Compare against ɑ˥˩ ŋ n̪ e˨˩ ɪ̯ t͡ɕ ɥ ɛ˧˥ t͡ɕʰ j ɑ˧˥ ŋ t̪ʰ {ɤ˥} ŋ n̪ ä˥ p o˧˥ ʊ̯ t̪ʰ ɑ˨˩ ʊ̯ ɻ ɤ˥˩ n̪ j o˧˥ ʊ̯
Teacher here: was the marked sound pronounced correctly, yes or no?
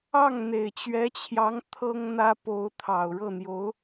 yes